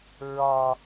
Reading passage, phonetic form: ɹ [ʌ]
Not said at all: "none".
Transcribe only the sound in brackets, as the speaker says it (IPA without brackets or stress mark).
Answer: ɒ